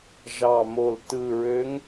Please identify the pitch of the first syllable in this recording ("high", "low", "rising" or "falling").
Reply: low